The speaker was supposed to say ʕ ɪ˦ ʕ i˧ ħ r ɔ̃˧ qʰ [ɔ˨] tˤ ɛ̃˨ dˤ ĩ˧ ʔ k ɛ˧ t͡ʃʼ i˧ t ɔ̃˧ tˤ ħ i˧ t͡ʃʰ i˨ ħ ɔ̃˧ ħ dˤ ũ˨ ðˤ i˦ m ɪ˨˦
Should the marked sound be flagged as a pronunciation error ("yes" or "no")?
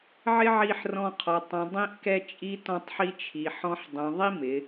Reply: no